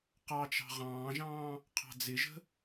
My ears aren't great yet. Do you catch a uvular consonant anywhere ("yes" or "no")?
yes